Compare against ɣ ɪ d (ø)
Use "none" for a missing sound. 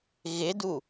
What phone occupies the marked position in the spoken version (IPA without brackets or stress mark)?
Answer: u